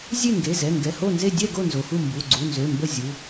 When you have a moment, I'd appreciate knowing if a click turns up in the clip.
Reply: yes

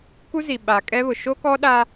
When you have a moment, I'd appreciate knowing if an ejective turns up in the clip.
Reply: yes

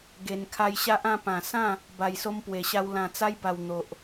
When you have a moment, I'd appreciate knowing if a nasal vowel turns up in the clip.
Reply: yes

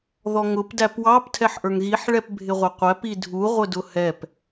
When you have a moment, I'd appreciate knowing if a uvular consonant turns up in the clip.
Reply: yes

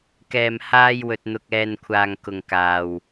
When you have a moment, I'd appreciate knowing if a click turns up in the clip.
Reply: no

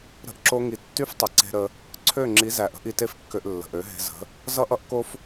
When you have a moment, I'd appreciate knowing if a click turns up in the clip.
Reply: yes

